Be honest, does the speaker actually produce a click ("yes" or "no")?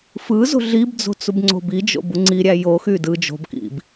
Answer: yes